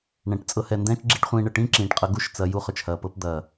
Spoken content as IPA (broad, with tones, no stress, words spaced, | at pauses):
ɳɛ̃˨ʈ t͡sʼɤ˧hɛ˨ndɛ̃ː˦t͡ʃ ɡ͡ǁi˦ʈχʷĩː˧ɳə˨ ʈĩː˦ ǁĩː˨ʈqʼɐ˧ ɡu˦ʃt͡sɐ˧ ju˦χɵ˨t͡ʃhɐː˨pɤ˦p d̪ɐː˨